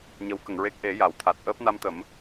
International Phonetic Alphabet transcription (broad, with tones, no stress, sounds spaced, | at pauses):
ɲ ə˧˥ w k ə˨˩˨ ŋ ɹ e˦˥ k̚ ʔ e˨˩˦ j a˨˩˨ w t̪ʰ a˨˩ t̚ ʔ əː˦˥ p̚ n a˧ m t̪ ə˨˩˦ m